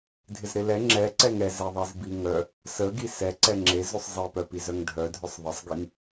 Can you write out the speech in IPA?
dʱɪzɾɪlɛ ŋ͡ǁɛǀɛŋ ɛzeðˤez biŋœ | səɡi sɛ ǀɛŋ͡ǁezʉsˤ zˤepœpiz œŋdʱœdʱœsˤ ðˤəsˤɡiŋ

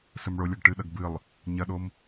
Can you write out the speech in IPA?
sɵmɭolʲɐɡ ʈɨɗɐɡ bɨlˠ | ɲɐɗom

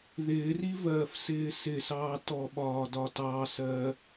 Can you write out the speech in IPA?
ðɪːrivɜːfsɪː sɪsɑː tɔɓɒːdɒ tɑsɜ

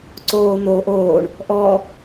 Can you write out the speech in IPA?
ǀoː n̪oːʔ oːɳ | ʔɔ

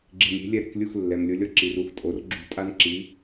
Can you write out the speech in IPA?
ɡ͡ǁi˨mɾʲe̤˨˦ lʲɛ˦ɾe̤˨˩˦k lʲu˦˨x lːɛ˨mlʲʊ˨˦lʲɔ˦˨ ǁi˨ru˦˨xtʼo˨˩˦r ɡ͡ǁṳ˦˨ tʼa˦nǁi˨˦

